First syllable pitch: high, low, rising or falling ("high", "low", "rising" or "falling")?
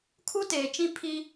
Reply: high